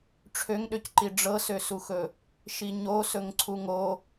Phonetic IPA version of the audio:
ʈ͡ʂʰøŋɗøcǃi ɖ͡ʐɤsøsuxɵ | ʃiɲosɵŋǀʰu ŋo

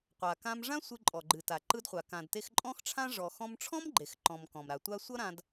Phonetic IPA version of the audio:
qʷa˩kã˧mʐã˥ sʷɨ˧ǃʼɔ˩ɡ͡ǃɨ˩ta˩ ǃɯ˧dχʷa˩kã˩dte˧x ǃʼɔ̃˥xʈ͡ʂʰã˥ ʐɔ˩ xɔ̃˧mʈ͡ʂʰɔ̃˥mɡ͡ǃe˩x ǃɔ̃˩m kɔ̃˩mɾa˩tʷa˥ sʷʌ˥ɾã˧d

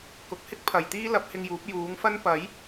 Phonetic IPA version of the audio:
kʊ˨˥k̚hɪ˥k̚ pʰɐ˨jt̪iː˥ lɐ˨˥p̚hɪ˧ŋjuː˨˥p̚ juː˨˥ŋfɐ˥n pɐ˨˥j

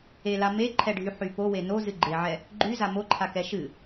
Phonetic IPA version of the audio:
ela meǃʰɛɖʱyħy powe nozɨ ɡ͡ǃeʕɛ | ɡ͡ǃyza moǃʰakɛ ʃɨ

